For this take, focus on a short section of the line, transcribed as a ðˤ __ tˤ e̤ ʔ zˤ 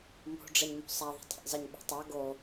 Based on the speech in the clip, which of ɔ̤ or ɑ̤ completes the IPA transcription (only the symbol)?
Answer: ɑ̤